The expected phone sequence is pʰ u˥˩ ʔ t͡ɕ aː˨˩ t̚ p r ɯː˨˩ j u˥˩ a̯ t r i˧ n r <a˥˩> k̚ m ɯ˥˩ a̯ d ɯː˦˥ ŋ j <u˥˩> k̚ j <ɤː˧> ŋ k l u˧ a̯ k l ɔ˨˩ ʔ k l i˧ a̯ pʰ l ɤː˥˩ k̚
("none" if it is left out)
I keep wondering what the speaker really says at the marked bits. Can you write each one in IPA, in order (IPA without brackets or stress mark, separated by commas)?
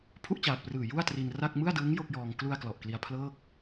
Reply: a˥˩, o˥˩, ɔː˧